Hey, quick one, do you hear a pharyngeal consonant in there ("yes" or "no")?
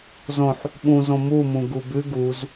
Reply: yes